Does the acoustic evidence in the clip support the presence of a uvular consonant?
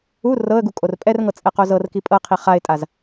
yes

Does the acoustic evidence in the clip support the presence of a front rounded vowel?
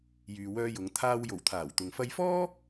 yes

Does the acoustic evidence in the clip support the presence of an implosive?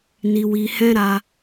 no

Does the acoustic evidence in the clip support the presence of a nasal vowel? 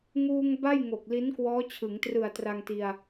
no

